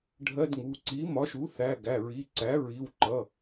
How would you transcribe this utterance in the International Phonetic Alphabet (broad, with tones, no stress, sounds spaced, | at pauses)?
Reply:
ɖʱ ɜ˧˥˧ d ŋ u˩˧˩ ǀ i˩˥ m ɒ˩˥ ʃ u˩˥ θ æ˩˧˩ ɡ æ˩˧˩ ɹ i˩˧˩ ǀ æ˩˥ ɹ i˩˧˩ w ǃ ʌ˩˧˩